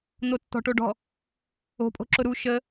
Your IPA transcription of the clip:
n̪ o tː ɔ̤ ʈ o ɖ ɔ̤ | o̤ pʼ o̤ ǁ ʊ ɾ u ʃ ə

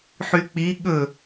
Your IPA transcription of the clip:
ħ y k͡p i ɠ ɵ

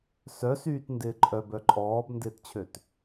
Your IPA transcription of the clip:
s œ s yː t n d ɪː ǃʼ œ b œ ǃʼ ɔː b n d ɪː t t͡ɕʰ ø t

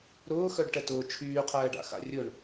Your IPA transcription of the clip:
ɾ ʊː x œ ɖ ʈ ɛ t ʊː t͡ʃʰ yː qʰ ɛː ɖ a̰ x a̰ rʲ ʊ ɳ

